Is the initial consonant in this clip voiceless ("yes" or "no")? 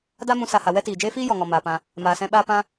no